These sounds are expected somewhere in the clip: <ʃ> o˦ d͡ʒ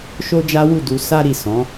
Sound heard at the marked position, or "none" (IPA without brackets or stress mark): ʃ